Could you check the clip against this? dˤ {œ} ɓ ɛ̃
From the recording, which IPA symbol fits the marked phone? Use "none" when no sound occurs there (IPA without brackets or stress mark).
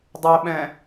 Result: ɛ